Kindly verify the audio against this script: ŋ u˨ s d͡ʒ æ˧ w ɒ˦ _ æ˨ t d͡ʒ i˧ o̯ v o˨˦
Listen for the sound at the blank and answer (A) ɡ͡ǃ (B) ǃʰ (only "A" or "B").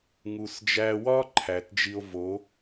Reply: B